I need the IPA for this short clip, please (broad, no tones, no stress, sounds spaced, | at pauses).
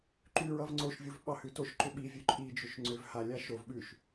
ǃ ʉ ɹ ʌ v ŋ͡ǀ o ʃ vʲ u v ɓ ɑ h ʉ t o ʃ ǃ ʏ ɓ i vʲ ʉ ǃʼ i d͡ʒ ʏ ʃ ŋ͡ǀ ʏ v h a lʲ a ʃ o v ɓ ʉ ʃ